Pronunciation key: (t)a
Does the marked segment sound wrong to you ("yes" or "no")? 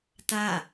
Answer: no